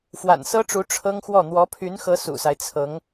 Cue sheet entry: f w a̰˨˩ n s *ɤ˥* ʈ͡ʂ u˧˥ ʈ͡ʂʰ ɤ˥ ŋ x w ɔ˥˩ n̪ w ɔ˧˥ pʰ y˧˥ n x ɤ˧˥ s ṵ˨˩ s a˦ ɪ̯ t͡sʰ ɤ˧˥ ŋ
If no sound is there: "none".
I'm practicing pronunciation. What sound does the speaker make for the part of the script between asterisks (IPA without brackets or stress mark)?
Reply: ɤ˥